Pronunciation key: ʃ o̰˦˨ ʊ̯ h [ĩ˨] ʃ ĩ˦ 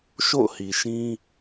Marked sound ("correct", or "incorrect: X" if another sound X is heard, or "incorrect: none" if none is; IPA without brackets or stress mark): incorrect: i˨